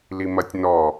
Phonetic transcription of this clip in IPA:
l i m ɐ tʲ n ɔ

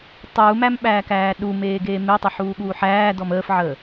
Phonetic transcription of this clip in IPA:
tˤ uː m æ m ɓ æː k æː ɗ u m eː ɡ eː m e tˤ e ħ uː ɠ uː ħ æː d ɔ m əː f ʕ əː

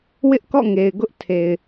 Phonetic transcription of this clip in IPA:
w ɪ˦ ʔ k ɔ̰˦˨ ŋ e˨ ɪ̯ ɡ ʊ˦ ʔ tʰ e˨ ɪ̯

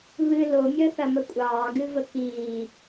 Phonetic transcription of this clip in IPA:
β ɨ l o mʲ əː θ ɐ m ə kʷʼ ɑː ɡ ɨ v ə k iː

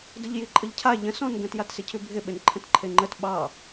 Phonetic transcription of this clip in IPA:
d ə ʎ j i ǃʼ ə ʎ cʰ a ʎ ə̃ s ɔ̃ n ɡ ə̃ t j a t s ɪ cʰ ʉ bʱ ɪ ɓ ɪ n ǃʰ ə̃ t ǃʰ e ŋ͡ǃ ə t ɓ ɑ

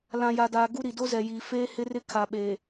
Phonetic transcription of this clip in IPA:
l ã˨ j a˨ d aː˨ ɡ u˦ ɾ i˨ d o˦ z ɛ˨ j iː˨ f eː˦ h ɪ˦ r ɪ˦ kʰ a˨ ɓ eː˨

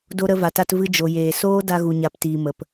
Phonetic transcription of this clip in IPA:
d o˧ ɾ ə˧ v a˨ t a˧ t v ɨ˧ d͡ʒ o˨ j eː˨ s oː˦ d a˧ ɣ u˨ ɲ a˨ p t iː˨ m ə˨ p

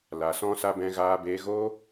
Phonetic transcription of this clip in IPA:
l a˨ s ɔ̃˧ s a˧ b ɛ̃˧ ɣ aː˧ b eː˧ ɣ oː˧

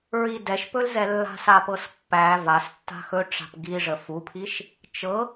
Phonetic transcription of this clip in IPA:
ɹ i d ɛ ʃ p ɵ l z ɛ lː a̤ s a p ɤ s pː æ v a s tː a̤ x ɵ ʈ͡ʂ a̤ p ɡ i ʐ ə f u pʰ i ʃ | t͡ʃ ɤ

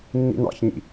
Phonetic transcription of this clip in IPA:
nː ḭ n ɑ̰ ç ɲ ḭ

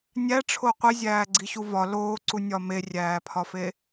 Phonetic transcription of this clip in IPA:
nʲ æ ʈ͡ʂʰ o qʷ i zʲ æː ɡ͡ǀ i ɕ u v ɒ l oː ǀ u nʲ ɒ m e rʲ æː pʰ ɒ f e

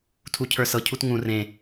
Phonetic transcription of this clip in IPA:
tʰ u cʰ ə˞ s ɤ cʰ u t ŋ ũ r ẽ

